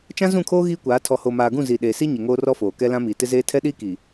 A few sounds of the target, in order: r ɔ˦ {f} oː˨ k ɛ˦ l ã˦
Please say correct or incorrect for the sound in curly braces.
correct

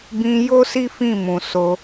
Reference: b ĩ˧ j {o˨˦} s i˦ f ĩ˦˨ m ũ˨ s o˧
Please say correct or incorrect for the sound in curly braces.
incorrect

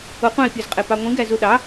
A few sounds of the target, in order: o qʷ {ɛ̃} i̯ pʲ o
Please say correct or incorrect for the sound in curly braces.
incorrect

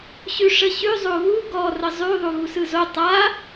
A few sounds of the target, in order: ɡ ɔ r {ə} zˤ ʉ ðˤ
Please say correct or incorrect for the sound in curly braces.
correct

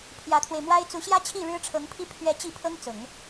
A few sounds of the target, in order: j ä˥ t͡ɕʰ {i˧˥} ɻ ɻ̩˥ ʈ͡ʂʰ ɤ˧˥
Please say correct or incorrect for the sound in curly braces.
incorrect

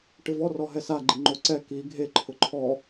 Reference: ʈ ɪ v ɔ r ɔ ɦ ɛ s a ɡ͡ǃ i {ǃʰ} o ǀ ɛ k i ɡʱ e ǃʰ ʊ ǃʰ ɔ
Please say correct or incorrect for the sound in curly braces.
incorrect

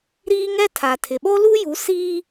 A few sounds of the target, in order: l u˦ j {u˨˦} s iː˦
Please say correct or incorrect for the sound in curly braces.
correct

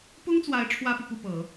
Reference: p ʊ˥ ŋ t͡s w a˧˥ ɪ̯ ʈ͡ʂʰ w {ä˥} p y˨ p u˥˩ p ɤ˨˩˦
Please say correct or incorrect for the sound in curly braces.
correct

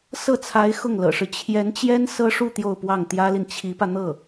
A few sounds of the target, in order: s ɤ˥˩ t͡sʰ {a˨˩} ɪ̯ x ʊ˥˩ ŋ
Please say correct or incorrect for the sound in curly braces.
incorrect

